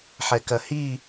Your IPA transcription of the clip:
ħ ɛ k ɐ h i

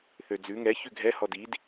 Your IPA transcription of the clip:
θ ø d͡z ʉ ŋ ɛ ç ʉ ɡʱ ɛ h ɔ d i d

